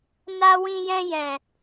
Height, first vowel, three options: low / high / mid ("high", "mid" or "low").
low